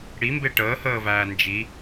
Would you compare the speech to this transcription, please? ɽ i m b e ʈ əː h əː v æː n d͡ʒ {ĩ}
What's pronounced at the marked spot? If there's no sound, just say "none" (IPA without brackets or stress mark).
i